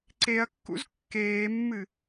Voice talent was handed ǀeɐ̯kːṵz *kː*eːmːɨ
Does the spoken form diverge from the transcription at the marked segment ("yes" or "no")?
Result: no